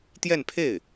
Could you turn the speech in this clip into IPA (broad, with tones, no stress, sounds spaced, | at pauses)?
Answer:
t̪ j ɛ˥˧ n pʰ e˥˩ ɪ̯